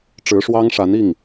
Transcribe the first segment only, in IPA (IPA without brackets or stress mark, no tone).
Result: ʈ͡ʂ